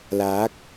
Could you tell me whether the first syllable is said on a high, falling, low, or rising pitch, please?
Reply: rising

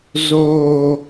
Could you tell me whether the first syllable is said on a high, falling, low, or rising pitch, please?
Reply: low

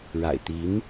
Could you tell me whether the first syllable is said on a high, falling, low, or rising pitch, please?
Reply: low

